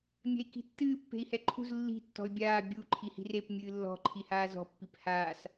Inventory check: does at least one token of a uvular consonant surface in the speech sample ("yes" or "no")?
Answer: no